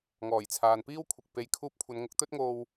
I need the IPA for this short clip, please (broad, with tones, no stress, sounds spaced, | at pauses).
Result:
ŋ ɔː˨˩ j t͡sʰ aː˨ n p iː˥ w kʷʰ ɪ˨ k̚ p e˨˧ j kʰ uː˧ p̚ kʷʰ ɐ˨˧ n ŋ ʊ˨˥ k̚ t̪ ɵ˥ t̚ ŋ o˧ w